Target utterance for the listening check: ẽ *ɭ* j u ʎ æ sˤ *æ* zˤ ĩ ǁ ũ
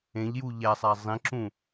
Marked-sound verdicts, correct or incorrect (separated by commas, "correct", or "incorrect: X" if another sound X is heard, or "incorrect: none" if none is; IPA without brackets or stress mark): incorrect: ʎ, correct